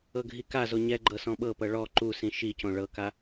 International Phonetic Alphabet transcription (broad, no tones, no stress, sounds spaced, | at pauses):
ɤ ɡʱ i k a z o ɲ ɛ ɡ͡ǃ ɤ s ɔ̃ ɓ ɤ p ɤ ɭ ɔ ǃ u s ĩ ʃ i c õ ɭ ɤ k a